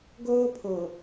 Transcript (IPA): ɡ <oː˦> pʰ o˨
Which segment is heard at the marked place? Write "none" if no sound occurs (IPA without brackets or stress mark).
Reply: oː˦